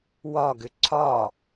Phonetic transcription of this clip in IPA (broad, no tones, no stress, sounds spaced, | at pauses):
w ɒ ɡ ʏ ǀʰ ɒ